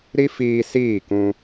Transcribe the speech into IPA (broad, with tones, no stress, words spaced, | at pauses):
ɾi˦fiː˧siː˦˨kũ˧